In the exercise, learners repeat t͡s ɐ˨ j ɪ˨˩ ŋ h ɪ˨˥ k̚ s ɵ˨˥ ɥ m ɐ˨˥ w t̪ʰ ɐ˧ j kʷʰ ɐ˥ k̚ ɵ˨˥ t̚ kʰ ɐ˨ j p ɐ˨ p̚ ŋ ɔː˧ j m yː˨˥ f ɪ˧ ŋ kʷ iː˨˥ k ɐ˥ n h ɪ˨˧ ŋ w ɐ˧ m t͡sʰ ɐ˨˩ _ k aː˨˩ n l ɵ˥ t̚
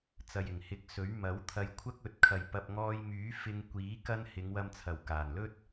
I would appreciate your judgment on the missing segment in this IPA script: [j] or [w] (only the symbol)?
w